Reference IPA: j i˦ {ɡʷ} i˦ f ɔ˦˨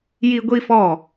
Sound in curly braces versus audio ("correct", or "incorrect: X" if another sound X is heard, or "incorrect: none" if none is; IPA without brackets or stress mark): correct